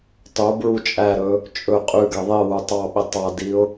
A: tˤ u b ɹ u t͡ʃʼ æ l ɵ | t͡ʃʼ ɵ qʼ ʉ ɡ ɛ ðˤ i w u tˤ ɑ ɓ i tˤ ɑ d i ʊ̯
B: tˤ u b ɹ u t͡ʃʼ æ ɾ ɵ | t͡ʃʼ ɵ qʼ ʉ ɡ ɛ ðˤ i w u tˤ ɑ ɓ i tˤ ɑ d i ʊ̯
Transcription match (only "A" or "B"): B